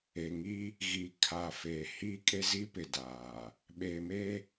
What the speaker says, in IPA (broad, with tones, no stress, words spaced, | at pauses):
e˨ŋi˦ | ɣi˨kʰa˨fe˨ hi˦ kʼe˦zi˦pɪ˨ daː˨ | ɓe˨me˦